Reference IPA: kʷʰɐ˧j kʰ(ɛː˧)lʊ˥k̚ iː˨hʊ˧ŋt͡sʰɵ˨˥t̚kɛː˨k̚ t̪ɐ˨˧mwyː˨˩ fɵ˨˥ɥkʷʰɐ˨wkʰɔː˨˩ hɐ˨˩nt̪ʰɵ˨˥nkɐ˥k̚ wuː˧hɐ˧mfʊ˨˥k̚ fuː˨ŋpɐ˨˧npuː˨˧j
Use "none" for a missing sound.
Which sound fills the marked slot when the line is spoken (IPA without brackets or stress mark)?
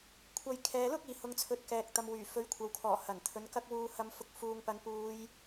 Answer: ɛː˨